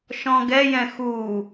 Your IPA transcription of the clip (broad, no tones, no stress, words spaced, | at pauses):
ʃɔ̃ɡɛjɛ̃ xu